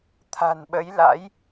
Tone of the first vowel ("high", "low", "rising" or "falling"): low